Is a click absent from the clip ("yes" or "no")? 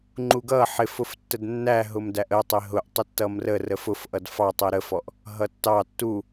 no